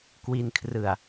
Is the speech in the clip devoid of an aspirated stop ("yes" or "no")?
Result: no